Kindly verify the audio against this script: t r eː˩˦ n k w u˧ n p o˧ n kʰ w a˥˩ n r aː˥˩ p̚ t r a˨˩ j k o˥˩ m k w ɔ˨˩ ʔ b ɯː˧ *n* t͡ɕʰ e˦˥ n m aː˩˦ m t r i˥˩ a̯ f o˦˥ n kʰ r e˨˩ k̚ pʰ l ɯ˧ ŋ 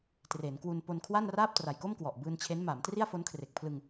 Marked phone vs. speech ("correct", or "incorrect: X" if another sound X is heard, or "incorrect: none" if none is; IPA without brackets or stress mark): correct